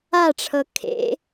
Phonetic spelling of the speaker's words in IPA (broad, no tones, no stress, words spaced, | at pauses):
aʈ͡ʂʰɤ kʰḛ